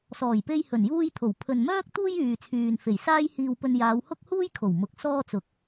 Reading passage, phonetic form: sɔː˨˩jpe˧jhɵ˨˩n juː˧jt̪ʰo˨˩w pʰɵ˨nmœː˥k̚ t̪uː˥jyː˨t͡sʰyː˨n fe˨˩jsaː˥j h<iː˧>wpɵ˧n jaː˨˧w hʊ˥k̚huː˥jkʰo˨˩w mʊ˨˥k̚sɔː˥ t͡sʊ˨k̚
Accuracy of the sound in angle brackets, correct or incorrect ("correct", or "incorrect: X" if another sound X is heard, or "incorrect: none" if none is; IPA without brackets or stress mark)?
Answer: correct